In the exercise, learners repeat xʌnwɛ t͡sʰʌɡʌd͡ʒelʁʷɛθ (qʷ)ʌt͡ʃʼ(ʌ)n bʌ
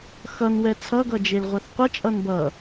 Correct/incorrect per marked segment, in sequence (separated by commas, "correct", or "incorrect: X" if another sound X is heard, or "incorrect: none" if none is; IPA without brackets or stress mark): correct, correct